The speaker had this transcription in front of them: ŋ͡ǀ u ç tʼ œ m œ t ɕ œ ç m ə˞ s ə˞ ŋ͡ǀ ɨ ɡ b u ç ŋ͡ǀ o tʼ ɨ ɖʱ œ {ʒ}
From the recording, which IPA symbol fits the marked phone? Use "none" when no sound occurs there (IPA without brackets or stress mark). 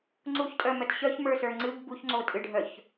ç